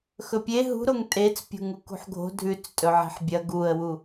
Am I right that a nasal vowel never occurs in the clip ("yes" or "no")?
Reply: yes